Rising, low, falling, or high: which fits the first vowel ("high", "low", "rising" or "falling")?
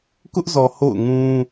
high